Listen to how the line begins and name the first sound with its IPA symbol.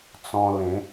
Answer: t͡s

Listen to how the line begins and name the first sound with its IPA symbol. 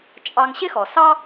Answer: t͡ʃʼ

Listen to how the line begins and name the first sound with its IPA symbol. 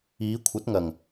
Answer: iː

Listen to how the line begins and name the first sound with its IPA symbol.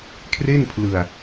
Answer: kʰ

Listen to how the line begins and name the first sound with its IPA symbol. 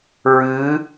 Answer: ɹ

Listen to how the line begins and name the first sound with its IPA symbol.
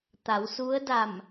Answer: t̪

